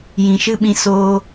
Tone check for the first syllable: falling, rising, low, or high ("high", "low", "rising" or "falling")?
low